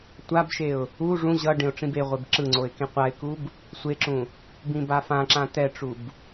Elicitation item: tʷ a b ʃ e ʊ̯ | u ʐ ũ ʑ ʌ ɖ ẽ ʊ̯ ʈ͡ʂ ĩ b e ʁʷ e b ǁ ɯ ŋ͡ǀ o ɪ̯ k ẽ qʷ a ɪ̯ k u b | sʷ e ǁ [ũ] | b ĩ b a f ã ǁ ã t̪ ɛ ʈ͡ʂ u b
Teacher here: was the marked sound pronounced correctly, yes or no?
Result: yes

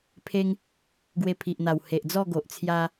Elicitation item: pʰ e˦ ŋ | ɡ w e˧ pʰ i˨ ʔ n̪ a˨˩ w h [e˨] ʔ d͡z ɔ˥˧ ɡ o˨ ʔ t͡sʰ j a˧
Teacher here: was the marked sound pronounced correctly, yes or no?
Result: yes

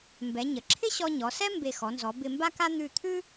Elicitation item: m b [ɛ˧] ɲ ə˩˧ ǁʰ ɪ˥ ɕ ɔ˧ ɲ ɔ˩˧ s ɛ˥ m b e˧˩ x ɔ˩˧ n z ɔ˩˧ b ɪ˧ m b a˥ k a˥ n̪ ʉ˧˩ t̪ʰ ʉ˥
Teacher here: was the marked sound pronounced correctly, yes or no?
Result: no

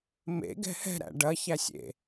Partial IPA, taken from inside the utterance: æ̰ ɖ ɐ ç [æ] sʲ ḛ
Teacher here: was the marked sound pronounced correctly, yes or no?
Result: yes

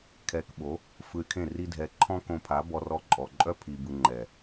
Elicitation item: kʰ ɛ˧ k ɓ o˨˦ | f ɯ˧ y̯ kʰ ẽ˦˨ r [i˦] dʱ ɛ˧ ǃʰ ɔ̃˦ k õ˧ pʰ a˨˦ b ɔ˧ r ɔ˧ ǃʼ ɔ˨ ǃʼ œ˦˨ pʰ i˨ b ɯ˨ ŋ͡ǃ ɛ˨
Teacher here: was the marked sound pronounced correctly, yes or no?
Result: yes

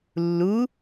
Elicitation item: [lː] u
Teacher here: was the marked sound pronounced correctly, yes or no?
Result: yes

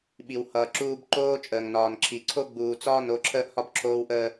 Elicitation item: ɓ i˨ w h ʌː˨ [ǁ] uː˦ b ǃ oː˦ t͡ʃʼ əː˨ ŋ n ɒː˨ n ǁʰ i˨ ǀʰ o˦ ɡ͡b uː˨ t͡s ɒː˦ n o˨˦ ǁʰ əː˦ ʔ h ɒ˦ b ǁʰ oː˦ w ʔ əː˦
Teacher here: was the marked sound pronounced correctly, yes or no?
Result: yes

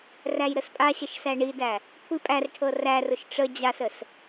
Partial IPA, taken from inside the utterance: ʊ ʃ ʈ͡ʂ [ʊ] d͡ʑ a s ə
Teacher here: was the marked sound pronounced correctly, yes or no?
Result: no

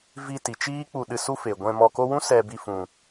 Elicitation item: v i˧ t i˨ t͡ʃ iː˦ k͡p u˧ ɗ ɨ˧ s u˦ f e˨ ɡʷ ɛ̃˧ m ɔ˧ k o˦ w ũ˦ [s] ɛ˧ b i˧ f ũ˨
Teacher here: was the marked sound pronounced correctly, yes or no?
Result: yes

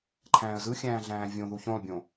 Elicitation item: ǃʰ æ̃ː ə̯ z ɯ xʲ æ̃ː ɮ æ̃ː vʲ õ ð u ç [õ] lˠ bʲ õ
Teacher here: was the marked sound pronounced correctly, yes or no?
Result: yes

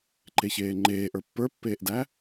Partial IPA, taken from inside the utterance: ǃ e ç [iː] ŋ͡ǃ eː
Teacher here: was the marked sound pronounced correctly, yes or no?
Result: no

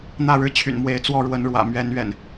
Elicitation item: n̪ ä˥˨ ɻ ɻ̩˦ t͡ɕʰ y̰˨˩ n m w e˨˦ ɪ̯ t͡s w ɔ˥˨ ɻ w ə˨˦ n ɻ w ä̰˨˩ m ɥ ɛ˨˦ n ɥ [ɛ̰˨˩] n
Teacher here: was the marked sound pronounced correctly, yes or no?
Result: yes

